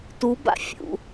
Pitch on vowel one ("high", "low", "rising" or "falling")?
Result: rising